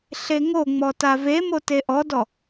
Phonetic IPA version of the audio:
ɬeŋoŋ͡mɔ tavemo teʔɔdɔ

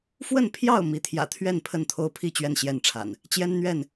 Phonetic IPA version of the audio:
fwə˥˨npʰjɑ˥˨ʊ̯ mi˨˦t̪ʰjä̰˨˩t̪ʰɥɛ˥˨n pʰə˥˨nt̪ʰo˦ʊ̯pʰi˥˨ t͡ɕɥɛ˥˨nɕjɛ˥˨nʈ͡ʂʰa̰˨˩n | t͡ɕjɛ˦nn̪ɥɛ˥˨n

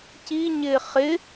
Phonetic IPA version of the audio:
ciɲɪː χɪ

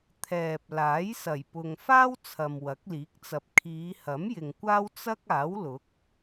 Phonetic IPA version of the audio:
t̪ʰɛː˨p̚ laː˨˥jsɐ˨˩jpʊ˨ŋ faː˥w t͡sʰɐ˨mwɐ˨˥k̚liː˨˥k̚t͡sɐ˨p̚ kʰiː˨˧hɐ˨˥m jɪ˨ŋkʷaː˥w t͡sɐ˥k̚ aː˨˥wlʊ˨˥k̚

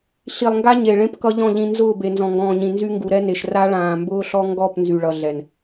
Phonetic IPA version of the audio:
ɬi˨lˠŋɡa˦ ɲe˨ ɭẽ˦pkʌ˦ʎɔ̃˦˨ ʎĩ˨ nzʊː˦˨be˨ nzɔ̃˨ŋɡɔ̃ː˨ɲĩ˨ nzy˦ ŋɡu˨ɾɛ˦ne˨ʃ ra˦ɭãː˨ mbʊː˦ɬɔ˦ ŋɡɔ˦˨p nzy˨ɭʌ˨ ɮɛ˨n

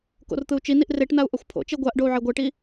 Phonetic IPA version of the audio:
ko̰rt̪ɯu̯t͡ʃiniʔ reʈnau̯ ʔʌxʷpʰo̰t͡ʃe ɡʷaʔ ɖou̯ʕeɡʷɛʈi

